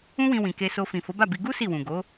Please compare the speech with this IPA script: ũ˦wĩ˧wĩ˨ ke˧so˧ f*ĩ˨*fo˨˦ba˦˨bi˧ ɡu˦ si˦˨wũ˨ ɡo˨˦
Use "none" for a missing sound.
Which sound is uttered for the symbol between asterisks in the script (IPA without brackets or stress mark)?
ĩ˨